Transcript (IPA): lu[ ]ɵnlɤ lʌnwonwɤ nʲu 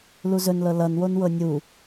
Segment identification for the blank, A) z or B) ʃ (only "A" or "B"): A